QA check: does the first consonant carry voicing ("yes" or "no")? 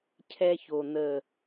no